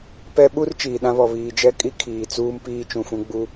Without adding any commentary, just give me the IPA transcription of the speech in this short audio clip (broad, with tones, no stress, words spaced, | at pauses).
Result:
pɛ˦ɓu˦r t͡ʃiː˨ɗã˦βɔ˨ βiː˨d͡ʒɛ˦kʼi˦ kʰiː˨t͡suː˦m piː˦t͡ʃũ˨ fũ˦ɡ͡bu˦